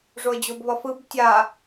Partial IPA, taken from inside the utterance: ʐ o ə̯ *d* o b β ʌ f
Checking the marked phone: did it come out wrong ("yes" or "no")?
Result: yes